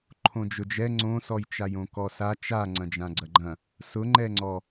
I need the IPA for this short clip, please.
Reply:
ǃʰ õ d͡ʒ ʊ d͡ʒ ɛ ŋ͡ǀ õ s ɔ j t͡ʃ a j õ k ɔ s a t͡ʃ a ŋ͡ǀ ɐ̃ d͡ʒ ã ɡ͡ǀ ɐ ɡ͡ǃ ɐ̃ | s ʊ ŋ͡ǃ ɛ ŋ͡ǀ ɔ

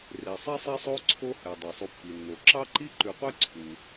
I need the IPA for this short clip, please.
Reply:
r e˩ sˤ ɛ˥ sˤ e˥ sˤ o˥ ǀʰ o˦ h ɛ˩ dˤ e˩ sˤ u˨ pː i˩ nː o˩ ǁ ɑ˥ ǃ i˥ ǃ ʉ˨ qʷ ɛ˥ ǀʰ u˩

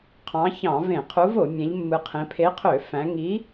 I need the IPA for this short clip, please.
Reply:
qʰ ɑ̃˨˦ ç ɑ̃˧˩˧ v ẽ˧˩˧ qʰ u˨˦ v o˧˩˧ mʲ æ̃˨˦ ʎ mː ɯ˨˦ qʰ ẽ˨˦ pʰ e˨˦ qʰ ø˧˩˧ f æ̃˨˦ ŋ i˨˦

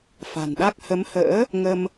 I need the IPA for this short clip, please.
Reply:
f a̤˨˩ n ɗ a˦˥ k̚ h ə˨˦ m h ə̰ː˧˥ | ŋ ə˧ m

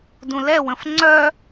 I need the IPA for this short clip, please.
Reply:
d ũ l ɛ w ə̃ f ŋ͡ǀ œ

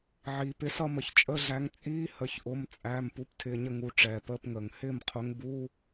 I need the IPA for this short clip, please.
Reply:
ʕ iː˩ p ɪ˨˥ s ʌ˥˨ m ə˩ ç t͡ʃʼ ə˧˥˧ ɮ æ˨˥ ŋ t͡sʼ iː˧˥˧ h ə˩˧˩ ç ʔ ʊ˩˧˩ m t͡sʼ æ˩˧˩ m p u˨˥ p tʰ ɪː˩˧˩ ɲ ə˥˨ ŋ u˩˧˩ ʈ͡ʂ ɛː˩ p əː˧˥˧ p ŋ əː˩ ŋ h ɪː˥˨ m qʰ ʊ˨˥ ŋ b u˧˥˧

